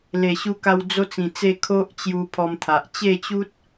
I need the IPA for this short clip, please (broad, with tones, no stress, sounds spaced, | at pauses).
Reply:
l e˨˩ ɕ u˧ k a˧ w d͡z o˧ t͡s ĩ˨˩ t͡s e˧ kʰ o˦ ʔ t͡ɕ j u˧ pʰ ɔ˧ m t̪ʰ a˨ ʔ t͡ɕ e˥˧ t͡ɕ u˦ t̚